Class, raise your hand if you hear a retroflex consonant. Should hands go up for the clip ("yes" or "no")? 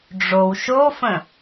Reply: yes